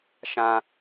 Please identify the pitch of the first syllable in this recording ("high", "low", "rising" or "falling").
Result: high